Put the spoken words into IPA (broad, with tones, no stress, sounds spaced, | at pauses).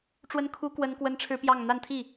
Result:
ʈ͡ʂ w ə˥ n kʰ u˥ k w ə˥ n k w ə˥ n ʈ͡ʂʰ ɻ̩˥ p j ɑ˥˧ ŋ n̪ a˥˧ n t̪ʰ i˥˩